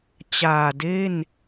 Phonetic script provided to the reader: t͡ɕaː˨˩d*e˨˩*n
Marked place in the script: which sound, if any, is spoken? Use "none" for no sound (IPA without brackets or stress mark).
e˥˩